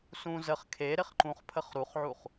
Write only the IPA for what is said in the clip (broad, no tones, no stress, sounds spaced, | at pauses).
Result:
s ũ z ə χ kʰ e ɾ ɪ χ ǃ ũ χ pʰ ə χ ɾ u χ ʕ u χ